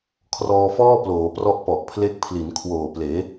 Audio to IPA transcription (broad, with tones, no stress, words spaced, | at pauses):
kʰrɔː˧fɔː˥˩ploː˩˦ prɔ˥˩ʔpɔ˨˩ʔ pʰle˦˥k̚pʰli˩˦nkʰwoː˨˩ pleː˩˦